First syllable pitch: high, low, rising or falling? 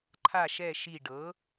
low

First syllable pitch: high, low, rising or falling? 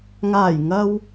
low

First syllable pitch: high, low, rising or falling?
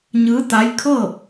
rising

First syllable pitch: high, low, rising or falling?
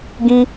high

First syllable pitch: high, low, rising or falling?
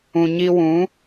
low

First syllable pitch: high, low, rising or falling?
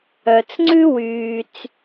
low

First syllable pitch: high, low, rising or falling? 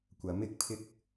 rising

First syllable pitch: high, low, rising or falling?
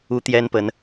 high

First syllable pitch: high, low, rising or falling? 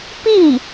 falling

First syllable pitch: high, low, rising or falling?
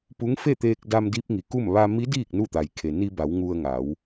rising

